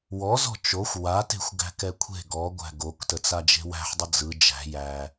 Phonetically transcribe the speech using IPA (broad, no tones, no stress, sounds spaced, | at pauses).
w ɔ z ɔ̤ t͡ʃ o xʷ w a t e̤ xʷ ɡ æ̤ k ɛ kʷʰ e̤ ɡ ɔ ɡʷ æ̤ ɡ o k t ə t͡s a d͡ʒ e̤ w æ̤ ħ dˤ ə d͡z ɯ d͡ʒ æ̤ j æ